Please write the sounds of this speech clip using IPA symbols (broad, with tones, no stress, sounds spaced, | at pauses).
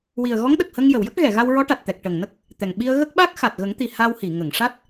w i˨˩ ə̯ ɣ ɔ˧˥ ŋ ɗ ə˨˩ k̚ h ə˧ ŋ j ə˨˩˨ w j ə˦˥ k̚ ɣ ɛ˨˩˨ ɣ a˧ w ɹ ɔ˧˥ ʈ a˨˩ t̚ t̪ ɛ˨˩ k̚ ʈ ə˨˩ ŋ n ə˦˥ k̚ | t̪ ɛ˨˩ ŋ ɓ i˧ ə̯ ɣ ə˦˥ k̚ ɓ a˦˥ k̚ x a˨˩ t̚ ɣ ə˨˩˦ ŋ t̪ i˨˩ h a˧ w h i˨˩˨ ŋ ə˨˩˨ ŋ ʂ a˦˥ t̚